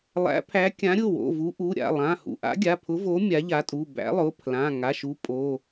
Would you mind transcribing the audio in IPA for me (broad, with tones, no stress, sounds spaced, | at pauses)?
lˠ æ̰˨˥ pʰ æ˨˥ kʲ ã˨˥ ɾʲ ʊ˩˧˩ w o̰˩˧˩ v u˨˥ ʔ u˩˧˩ ɾʲ a̰˩˧˩ lˠ ã˩˧˩ h ṵ˩˧˩ ʔ a̰˨˥ ɡʲ a˩˧˩ pʰ ʊ˨˥ v o˨˥ mʲ a˨˥ ʎ a˨˥ tʼ u˩˧˩ b æ̰˨˥ lˠ ʊ˩˧˩ pʰ l ã˩˧˩ ŋ a˩˧˩ ʃ u˨˥ pʼ o˩˧˩